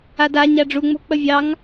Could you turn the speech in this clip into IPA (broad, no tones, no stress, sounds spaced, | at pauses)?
a d a ɲ a ɖ͡ʐ u ŋ͡m o̤ k͡p ə vʲ ɑ ŋ